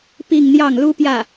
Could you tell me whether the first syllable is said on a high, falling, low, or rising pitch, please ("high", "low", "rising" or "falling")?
falling